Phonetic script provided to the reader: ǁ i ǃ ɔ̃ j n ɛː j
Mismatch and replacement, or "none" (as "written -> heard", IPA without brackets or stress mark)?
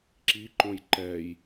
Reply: n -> ǃ